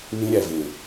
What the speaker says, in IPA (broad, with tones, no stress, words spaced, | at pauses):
nĩ˧ɾʲæ˨vẽ˨